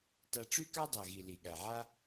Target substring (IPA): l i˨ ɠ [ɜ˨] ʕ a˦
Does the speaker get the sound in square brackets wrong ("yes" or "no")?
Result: yes